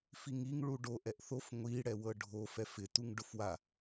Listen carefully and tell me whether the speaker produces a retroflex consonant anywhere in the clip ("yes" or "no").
yes